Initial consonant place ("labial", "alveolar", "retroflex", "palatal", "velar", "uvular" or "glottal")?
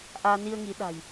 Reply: glottal